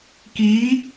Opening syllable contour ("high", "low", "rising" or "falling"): rising